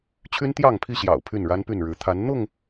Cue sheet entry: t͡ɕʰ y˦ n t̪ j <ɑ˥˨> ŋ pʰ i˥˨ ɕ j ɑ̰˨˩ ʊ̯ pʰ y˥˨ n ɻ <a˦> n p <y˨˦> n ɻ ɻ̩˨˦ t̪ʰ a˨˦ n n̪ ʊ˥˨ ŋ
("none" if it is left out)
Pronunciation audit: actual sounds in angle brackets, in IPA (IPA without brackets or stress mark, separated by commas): ɑ˥˨, a˦, y˥˨